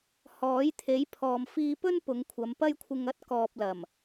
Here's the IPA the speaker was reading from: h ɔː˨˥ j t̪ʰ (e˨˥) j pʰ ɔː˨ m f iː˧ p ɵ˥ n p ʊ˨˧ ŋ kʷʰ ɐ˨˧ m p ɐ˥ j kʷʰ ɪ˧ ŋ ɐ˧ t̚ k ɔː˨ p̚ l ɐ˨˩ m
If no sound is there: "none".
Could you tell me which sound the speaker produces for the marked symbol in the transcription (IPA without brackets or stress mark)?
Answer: e˨˥